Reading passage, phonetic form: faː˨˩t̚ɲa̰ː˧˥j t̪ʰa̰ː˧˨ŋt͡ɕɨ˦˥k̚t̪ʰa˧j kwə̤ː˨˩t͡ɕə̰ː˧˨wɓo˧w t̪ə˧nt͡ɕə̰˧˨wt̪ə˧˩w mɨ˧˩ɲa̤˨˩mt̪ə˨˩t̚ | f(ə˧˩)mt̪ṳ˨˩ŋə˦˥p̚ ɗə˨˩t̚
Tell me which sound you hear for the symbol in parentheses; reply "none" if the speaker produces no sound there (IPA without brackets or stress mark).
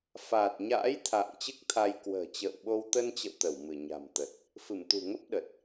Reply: ɨ˧˩